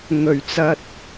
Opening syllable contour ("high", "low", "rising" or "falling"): low